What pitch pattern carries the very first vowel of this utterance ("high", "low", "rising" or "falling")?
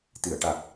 low